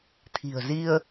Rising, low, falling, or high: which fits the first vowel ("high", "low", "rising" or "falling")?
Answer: low